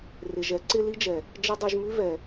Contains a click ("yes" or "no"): yes